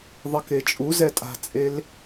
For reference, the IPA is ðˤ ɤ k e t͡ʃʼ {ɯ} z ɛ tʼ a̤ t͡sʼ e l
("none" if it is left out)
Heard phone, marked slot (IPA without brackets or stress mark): u